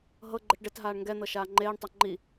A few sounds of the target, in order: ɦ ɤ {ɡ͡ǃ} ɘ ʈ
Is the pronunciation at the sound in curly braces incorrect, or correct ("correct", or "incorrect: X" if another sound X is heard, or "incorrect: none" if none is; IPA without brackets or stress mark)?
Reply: correct